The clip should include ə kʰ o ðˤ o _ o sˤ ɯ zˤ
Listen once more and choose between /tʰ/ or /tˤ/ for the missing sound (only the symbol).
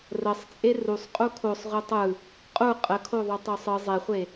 tˤ